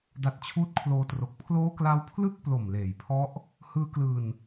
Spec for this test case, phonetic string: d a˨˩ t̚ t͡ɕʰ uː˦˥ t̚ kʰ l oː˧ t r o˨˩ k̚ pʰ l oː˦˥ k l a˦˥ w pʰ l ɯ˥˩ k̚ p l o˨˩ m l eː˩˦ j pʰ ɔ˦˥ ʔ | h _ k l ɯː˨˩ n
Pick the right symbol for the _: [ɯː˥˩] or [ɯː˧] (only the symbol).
ɯː˧